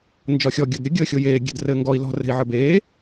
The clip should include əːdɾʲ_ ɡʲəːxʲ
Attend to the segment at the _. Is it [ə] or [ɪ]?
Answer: ə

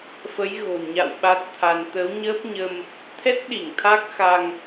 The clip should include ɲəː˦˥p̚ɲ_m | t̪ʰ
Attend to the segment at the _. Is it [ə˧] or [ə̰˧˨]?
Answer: ə˧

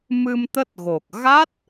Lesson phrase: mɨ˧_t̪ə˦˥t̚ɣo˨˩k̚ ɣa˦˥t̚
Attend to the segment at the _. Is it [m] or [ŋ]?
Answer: m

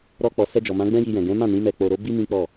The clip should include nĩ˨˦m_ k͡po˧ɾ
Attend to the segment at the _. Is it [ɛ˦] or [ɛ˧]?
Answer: ɛ˧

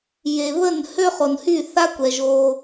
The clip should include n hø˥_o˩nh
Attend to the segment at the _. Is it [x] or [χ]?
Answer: χ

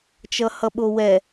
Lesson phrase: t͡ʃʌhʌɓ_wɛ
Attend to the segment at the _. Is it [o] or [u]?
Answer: o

